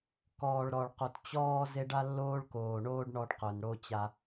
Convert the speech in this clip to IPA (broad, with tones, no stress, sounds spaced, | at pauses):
k ɔː˨ ɭ ɾ ɔ˨ ɭ q o˨ t t͡ɕ ɔː˧ z e˦ ɖ a˦ lː oː˦ ɭ k oː˨ ɳ oː˦ ɖ ɳ ɔ˧ ɖ q œ˨ n ɽ o˦ t͡ɕ a˧